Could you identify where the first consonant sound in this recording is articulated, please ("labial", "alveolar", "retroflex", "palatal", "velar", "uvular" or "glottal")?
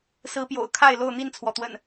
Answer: alveolar